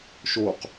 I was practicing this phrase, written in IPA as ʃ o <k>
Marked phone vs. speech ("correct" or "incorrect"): incorrect